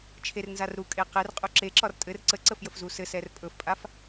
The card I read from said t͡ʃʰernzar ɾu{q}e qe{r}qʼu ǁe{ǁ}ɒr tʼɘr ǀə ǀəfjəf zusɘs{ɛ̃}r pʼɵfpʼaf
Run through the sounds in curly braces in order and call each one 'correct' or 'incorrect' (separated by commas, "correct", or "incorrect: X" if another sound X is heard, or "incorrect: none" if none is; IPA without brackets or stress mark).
incorrect: kʼ, correct, correct, incorrect: ɛ